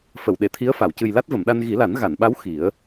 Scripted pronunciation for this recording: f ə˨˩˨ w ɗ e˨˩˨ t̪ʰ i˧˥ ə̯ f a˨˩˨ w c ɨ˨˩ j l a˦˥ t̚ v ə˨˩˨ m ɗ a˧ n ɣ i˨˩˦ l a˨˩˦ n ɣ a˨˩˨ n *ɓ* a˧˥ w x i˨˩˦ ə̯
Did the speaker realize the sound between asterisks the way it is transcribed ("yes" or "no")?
yes